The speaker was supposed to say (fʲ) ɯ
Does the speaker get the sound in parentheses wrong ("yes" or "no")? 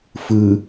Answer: yes